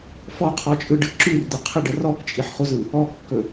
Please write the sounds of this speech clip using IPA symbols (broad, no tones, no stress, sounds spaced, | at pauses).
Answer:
f ɔ qʰ ɔ t͡ʃʼ ɯ ɖ ɯ ǁ ʉ r d̪ ʏ qʰ ə ɖ ə r ɔ k t͡ʃʼ i ħ χ u z ɯ | ɔ kː ɵ